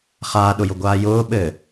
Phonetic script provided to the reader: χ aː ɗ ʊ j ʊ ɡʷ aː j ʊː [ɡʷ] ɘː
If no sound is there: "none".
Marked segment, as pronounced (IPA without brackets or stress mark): ɓ